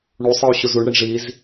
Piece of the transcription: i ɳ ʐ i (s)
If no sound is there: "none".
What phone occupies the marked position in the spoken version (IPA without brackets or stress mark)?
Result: z